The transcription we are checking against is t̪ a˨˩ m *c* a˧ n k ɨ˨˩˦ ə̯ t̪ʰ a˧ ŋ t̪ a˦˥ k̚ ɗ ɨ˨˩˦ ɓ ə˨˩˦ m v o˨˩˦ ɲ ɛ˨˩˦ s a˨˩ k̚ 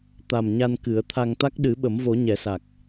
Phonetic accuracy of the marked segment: incorrect: ɲ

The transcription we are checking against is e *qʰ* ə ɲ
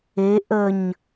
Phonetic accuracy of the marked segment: incorrect: ʔ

